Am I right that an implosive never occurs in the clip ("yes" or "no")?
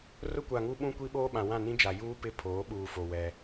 no